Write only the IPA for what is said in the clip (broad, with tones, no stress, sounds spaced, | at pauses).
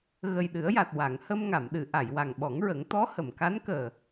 ɣ ə˨˩ j ɗ ɨ˨˩˦ ə̯ j a˨˩ t̚ w a˨˩˨ ŋ h ə˧ m ŋ a˨˩˨ m ɗ ɨ˨˩˨ ʔ a˨˩˨ j w a˨˩ ŋ ɓ ɔ˨˩˦ ŋ ɹ ə˨˩˦ ŋ t̪ ɔ˧˥ h ə˨˩˨ m k a˧˥ n k əː˨˩